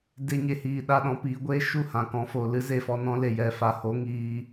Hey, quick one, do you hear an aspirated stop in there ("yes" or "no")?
no